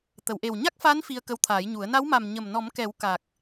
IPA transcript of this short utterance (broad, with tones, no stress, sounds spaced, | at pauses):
t̪ ə˨˩˨ w ʔ e˨˩ w ɲ a˦˥ k̚ f a˧˥ n f i˧ ə̯ k ə˧˥ w t̪ʰ aː˨˩˦ j ɲ u˨˩˦ ə̯ n a˧˥ w m a˨˩ m ɲ ə˨˩ m n ɔ˨˩˦ m k ɛ˨˩˦ w k a˨˩ k̚